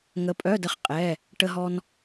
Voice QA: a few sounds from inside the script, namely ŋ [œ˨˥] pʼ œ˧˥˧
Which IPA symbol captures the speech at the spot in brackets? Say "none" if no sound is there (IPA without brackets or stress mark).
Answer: ə˨˥